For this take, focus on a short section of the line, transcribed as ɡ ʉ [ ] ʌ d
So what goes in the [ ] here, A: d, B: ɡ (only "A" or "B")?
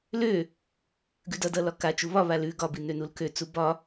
A